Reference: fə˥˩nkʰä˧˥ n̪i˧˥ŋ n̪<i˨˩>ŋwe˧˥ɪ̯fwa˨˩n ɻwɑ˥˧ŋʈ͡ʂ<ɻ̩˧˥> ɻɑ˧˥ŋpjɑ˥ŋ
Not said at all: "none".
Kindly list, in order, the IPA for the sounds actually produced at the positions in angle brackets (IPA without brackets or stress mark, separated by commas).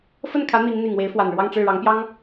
i˨˩, ɻ̩˥˩